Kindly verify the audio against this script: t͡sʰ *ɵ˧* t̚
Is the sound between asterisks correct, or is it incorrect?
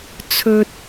correct